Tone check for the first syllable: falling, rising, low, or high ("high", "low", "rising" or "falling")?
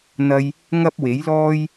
high